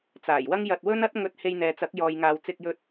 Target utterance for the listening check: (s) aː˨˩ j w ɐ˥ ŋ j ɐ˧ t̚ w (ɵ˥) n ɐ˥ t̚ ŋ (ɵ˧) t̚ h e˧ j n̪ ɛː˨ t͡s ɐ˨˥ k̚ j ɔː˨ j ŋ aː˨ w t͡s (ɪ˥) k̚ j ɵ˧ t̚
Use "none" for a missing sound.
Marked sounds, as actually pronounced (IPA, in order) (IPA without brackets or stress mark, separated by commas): t͡s, ɵ˥, ɵ˧, ɪ˧